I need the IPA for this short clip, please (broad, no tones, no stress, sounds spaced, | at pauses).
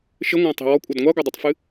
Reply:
ʃ ɘ ŋʷ ã tˤ i̤ w ɔ kʷʼ ɐ d ŋʷ a ɡʷ ɐ dˤ ɨ tˤ f ɨ